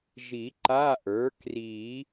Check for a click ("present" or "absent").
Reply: present